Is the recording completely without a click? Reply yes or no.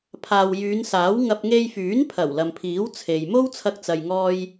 yes